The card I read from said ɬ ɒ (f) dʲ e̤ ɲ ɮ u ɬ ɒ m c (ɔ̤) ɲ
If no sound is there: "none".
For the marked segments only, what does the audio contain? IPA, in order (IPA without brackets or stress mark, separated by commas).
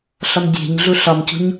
m, o̤